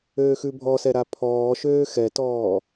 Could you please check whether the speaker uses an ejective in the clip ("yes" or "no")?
no